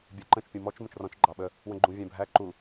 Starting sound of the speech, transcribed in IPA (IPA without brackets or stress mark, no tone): bʲ